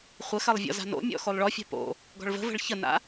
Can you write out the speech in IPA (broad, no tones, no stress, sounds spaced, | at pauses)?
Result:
χʷ ə x ɜ lˠ vʲ ɔ̰ z a̤ n o̰ mʲ ɔ̰ x o lˠ ɭ ɔ fʲ a̤ p o̰ | ɡ ɔ̤ ɭ v ə̤ v ə̤ ɭ ç ə n a̰